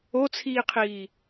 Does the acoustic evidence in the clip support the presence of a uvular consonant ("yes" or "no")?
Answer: yes